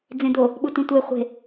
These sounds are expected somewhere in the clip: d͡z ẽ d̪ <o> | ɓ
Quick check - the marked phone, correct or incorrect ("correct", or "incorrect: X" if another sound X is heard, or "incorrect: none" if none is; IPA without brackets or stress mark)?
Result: correct